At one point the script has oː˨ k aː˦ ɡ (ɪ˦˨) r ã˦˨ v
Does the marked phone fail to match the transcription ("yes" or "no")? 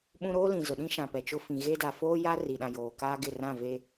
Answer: no